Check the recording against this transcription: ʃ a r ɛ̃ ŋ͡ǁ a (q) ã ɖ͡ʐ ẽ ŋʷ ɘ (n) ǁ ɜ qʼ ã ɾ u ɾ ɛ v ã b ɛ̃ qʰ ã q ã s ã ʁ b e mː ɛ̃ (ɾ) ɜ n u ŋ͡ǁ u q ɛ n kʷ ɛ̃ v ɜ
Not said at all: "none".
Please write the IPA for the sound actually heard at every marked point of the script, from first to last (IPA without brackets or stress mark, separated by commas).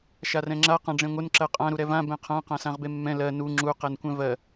q, n, l